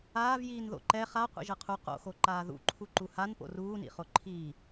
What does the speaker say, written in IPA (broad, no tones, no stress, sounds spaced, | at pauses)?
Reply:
aː v j iː n ð o̰ ǃ ɛ χ a qʷ ḭ ʒ ɤ qʰ u q o̰ x o ǃ aː ð ṵ ǃʰ u ǃ u h a n p o̰ r uː n ḭ χ o ǃʰ iː